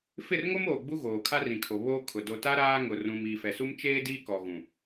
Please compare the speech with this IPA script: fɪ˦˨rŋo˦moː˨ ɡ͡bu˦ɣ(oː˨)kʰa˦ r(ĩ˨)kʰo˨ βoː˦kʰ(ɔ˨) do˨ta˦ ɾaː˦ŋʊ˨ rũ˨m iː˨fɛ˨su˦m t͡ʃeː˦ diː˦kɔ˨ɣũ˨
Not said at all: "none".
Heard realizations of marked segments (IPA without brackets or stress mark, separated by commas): oː˨, ĩ˨, ʊ˨